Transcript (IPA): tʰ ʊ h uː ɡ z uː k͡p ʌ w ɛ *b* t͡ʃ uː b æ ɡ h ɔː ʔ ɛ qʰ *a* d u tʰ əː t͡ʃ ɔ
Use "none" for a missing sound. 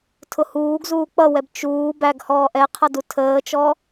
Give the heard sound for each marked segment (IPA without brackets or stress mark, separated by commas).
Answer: b, ʌ